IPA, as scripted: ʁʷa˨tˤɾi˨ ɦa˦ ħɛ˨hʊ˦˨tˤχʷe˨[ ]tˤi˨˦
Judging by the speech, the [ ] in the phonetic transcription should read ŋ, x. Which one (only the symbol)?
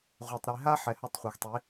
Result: x